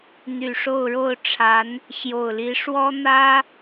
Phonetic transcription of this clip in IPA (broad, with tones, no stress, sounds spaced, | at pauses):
n̪ y˨˩ ʂ o˥˧ ʊ̯ ɻ o˥˩ ʊ̯ ʈ͡ʂʰ a˧˥ n | ɕ j o˨˩ ʊ̯ l i˧˥ ʂ w ɔ˥ n̪ ä˥